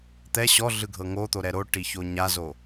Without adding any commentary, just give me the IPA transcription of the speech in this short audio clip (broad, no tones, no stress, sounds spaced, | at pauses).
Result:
t̪ ɛ ɕ ɔ ɮ ɯ ɡʱ ɤ ŋ o t̪ o ɾ ɛ ɾ o ʈ i ç o ɲ a z o